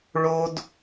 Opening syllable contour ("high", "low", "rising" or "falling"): high